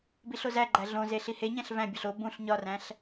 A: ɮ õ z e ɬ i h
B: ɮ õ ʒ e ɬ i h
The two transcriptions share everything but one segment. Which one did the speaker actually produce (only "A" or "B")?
A